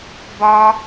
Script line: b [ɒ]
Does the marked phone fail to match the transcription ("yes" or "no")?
no